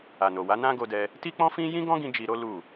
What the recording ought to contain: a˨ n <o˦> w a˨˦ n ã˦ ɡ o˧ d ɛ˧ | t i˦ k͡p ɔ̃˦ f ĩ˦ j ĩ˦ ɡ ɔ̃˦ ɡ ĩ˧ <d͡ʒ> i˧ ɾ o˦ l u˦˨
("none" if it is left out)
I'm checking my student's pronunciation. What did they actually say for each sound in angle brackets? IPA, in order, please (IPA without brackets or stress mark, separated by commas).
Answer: o˨, d͡ʒ